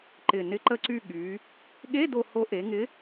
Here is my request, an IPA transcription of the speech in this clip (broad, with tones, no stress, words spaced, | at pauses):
ǃɪ˨˩ nɪ˨˥ǃə˦˨ǀy˦˨ ɠy˩˧ | ɠe˧˥˧ do˦˨ ho˨˥ʔe˩˧ ŋɪ˨˥